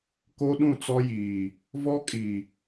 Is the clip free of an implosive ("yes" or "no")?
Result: no